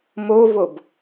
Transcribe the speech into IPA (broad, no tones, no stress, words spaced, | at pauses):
movob